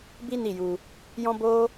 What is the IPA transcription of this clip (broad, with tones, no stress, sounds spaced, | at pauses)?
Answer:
b i˦ n i˦˨ j u˧ | j ɔ̃˦ b o˦